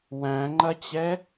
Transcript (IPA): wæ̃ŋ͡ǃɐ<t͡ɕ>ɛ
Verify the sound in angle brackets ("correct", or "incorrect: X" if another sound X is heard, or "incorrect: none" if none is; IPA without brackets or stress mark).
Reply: correct